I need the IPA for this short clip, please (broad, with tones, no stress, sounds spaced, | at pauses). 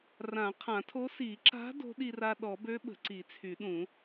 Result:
r ã˨˩˦ qʰ ã˨˩˦ tʰ o˧˥ s i˨˩˦ ǁ a̤˧˥ d o̤˧˥ ɗ i˧ r a˧ ɗ ɔ˨˩˦ b ø˧˥ ɓ ə̤˨˩˦ ǀ i˨˩˦ t͡sʰ y˨˩˦ ɗ ũ˨˩˦